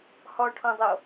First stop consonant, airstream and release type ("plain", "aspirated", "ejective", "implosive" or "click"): aspirated